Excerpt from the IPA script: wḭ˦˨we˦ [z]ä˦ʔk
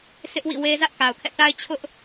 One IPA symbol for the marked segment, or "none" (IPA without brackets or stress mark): z